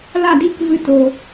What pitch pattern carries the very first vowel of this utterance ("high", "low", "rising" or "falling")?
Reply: falling